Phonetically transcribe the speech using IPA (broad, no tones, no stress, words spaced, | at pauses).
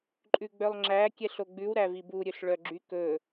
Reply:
ǃʼʉɡ͡bœlˠŋ͡ǁæ kʲɛɬoɡ͡bʉw ɾævibu ɾʲɵɬɭœɡ͡ǁy kɵ